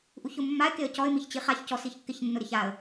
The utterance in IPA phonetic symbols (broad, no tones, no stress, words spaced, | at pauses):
ʔuçʊmːaɪ̯ keə̯cɔɪ̯ miçt͡ɕiχaç cɔsiçkːɪç nːʊɾɪçaə̯